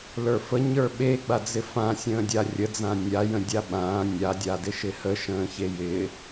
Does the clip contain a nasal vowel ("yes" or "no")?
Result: yes